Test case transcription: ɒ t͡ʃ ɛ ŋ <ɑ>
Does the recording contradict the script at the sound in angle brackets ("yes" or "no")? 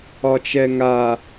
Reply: yes